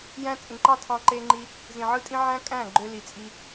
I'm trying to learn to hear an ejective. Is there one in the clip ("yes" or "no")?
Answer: yes